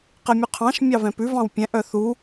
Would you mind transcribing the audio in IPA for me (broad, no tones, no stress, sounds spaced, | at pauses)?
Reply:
q ɛ mʲ ʉ qʰ ɑ̃ ʃ mʲ ɑ v ɛ̃ p ʉ v ɑ̃ w pʲ ɛ̃ ʔ œ θ u